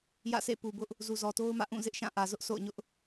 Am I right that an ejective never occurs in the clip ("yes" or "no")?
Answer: yes